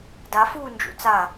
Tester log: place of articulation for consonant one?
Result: alveolar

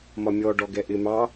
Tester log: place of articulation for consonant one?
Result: labial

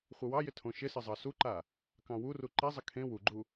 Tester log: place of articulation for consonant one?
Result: uvular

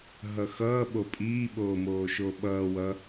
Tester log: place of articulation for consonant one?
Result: glottal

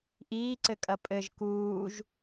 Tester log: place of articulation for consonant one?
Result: glottal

